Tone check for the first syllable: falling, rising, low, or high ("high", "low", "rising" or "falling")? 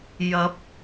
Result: rising